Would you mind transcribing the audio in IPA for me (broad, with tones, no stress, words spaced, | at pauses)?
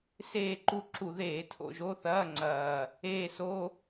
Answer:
seː˦˨ǃu˦˨ ǁu˧˩˧ðeː˧˩˧ tʰo̰˦˨ʒo˧˥˧θɐː˧˥˧ ŋ͡ǀɐː˦˨ | eː˦˨so˧˥˧